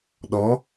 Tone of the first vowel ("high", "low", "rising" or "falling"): rising